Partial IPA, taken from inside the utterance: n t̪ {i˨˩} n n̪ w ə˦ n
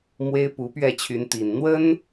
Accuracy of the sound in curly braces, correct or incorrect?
correct